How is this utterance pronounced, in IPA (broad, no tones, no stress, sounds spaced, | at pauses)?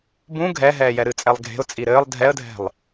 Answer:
b ũ ɡʱ ɛ ɦ ɛː j ɛ ɾ ɨ t͡sʼ ɛ lˠ ɡʱ e̤ ʊ̯ t͡sʼ i ɾ ɘː lˠ dʱ ɛ ə̯ dʱ ɛ̤ lˠ